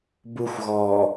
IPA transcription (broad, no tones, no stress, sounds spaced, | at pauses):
b u xʷ ɣ ɔː